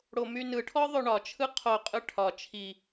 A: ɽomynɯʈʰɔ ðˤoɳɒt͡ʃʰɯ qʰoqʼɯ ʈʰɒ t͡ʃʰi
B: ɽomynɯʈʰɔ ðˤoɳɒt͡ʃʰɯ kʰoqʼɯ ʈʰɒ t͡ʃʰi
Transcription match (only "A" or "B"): A